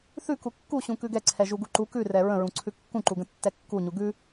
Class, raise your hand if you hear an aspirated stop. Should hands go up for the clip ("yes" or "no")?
yes